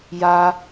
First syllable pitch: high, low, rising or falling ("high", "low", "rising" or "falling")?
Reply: high